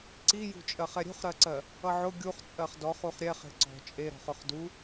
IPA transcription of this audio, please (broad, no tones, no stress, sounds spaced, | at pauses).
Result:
ǀ i j ṳ t͡ʃʼ ɜ χ ɛ ɾʲ ṳ χ ɾ ɜ ǀ ɜ | ʌ ʕ ʊ ɡʲ u χ t͡sʼ ɜ χ d ɔ χ u χ ɾʲ ɛ χ e̤ ǀ ɔ̤ t͡ʃʼ e ɾ ɔ̤ χ ʊ χ d u